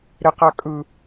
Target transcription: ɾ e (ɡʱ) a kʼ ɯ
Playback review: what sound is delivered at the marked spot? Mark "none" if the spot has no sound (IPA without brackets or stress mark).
q